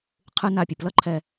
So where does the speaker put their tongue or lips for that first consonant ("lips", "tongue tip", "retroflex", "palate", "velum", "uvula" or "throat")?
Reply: uvula